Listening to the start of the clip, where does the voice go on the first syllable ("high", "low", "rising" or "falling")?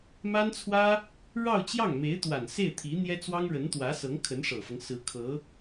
high